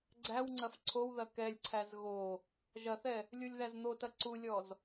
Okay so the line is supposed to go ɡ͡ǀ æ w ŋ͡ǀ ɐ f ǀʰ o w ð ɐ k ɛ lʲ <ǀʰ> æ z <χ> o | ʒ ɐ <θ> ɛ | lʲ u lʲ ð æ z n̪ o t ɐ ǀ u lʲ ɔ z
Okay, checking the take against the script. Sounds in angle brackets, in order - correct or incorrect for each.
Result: correct, incorrect, correct

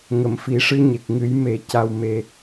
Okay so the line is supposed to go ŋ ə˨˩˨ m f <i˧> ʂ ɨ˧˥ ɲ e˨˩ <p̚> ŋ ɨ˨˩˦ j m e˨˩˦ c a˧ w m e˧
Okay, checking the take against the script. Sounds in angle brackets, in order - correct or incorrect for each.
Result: incorrect, incorrect

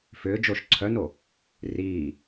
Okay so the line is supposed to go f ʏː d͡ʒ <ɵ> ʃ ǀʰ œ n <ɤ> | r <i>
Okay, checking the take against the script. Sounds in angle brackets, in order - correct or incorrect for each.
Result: incorrect, incorrect, incorrect

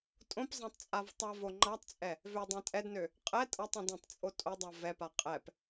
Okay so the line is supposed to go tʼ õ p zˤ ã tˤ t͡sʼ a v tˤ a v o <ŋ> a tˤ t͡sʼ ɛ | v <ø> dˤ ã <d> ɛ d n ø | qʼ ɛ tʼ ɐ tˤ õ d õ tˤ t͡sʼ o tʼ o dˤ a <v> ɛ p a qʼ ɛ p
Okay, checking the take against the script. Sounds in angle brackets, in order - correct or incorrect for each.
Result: incorrect, correct, incorrect, correct

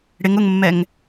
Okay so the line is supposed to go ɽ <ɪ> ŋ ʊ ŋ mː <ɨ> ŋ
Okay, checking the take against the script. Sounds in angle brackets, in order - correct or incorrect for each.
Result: correct, incorrect

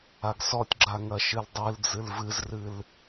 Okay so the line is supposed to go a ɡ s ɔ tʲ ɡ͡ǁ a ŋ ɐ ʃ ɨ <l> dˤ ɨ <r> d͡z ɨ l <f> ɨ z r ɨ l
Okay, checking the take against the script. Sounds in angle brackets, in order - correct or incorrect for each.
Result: correct, incorrect, incorrect

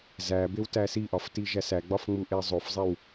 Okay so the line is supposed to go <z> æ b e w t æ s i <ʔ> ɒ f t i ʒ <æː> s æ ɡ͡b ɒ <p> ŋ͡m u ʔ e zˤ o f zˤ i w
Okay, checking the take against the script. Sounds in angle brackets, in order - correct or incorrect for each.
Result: correct, correct, incorrect, incorrect

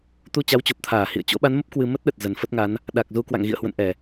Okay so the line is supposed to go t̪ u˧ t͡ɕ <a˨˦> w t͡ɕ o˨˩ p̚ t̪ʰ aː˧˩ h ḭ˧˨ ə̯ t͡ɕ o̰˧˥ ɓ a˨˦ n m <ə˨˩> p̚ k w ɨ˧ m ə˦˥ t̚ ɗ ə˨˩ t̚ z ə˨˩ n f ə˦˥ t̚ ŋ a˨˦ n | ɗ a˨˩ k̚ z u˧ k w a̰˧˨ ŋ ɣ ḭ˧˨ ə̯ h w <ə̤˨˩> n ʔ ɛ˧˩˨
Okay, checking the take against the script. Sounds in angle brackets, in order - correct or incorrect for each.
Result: correct, incorrect, incorrect

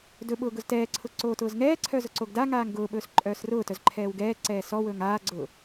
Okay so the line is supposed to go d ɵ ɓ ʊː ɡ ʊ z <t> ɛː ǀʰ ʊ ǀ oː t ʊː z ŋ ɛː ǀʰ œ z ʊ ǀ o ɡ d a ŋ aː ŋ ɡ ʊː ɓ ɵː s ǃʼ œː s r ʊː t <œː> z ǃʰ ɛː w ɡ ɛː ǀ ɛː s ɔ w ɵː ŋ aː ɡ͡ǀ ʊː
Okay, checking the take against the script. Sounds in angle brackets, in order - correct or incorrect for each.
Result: correct, incorrect

